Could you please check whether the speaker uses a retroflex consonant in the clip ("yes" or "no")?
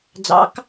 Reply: no